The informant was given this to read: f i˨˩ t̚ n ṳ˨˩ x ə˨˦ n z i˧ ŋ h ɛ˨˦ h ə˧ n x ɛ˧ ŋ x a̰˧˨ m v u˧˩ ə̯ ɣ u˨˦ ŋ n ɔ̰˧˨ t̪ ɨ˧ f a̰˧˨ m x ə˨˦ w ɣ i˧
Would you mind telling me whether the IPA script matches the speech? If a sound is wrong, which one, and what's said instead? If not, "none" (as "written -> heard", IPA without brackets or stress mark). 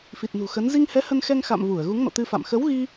none